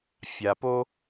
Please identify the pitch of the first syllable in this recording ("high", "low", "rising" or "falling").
low